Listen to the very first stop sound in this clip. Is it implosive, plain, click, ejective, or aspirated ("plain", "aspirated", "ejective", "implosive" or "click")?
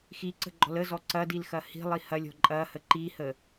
click